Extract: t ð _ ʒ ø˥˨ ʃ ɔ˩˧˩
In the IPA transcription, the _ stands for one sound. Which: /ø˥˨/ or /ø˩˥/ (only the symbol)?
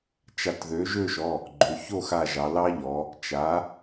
ø˩˥